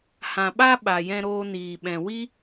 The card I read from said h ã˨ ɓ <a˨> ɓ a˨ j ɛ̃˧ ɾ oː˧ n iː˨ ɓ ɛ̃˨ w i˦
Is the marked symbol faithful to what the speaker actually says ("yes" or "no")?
no